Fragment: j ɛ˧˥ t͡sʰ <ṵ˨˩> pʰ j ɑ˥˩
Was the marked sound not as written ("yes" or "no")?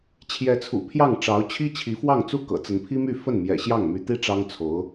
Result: no